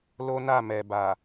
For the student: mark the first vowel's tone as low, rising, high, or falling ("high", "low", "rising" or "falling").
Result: high